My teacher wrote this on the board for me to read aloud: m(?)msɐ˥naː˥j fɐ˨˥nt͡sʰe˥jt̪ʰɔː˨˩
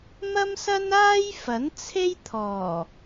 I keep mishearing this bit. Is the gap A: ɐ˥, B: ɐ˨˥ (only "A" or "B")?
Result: A